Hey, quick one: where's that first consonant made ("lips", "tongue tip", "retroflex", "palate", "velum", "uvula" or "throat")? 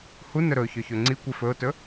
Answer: throat